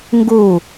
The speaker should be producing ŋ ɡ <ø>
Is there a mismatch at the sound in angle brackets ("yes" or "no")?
yes